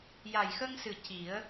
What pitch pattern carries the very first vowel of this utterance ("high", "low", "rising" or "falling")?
low